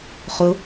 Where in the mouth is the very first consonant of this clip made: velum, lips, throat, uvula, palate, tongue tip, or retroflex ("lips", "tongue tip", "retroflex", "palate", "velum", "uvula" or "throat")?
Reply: uvula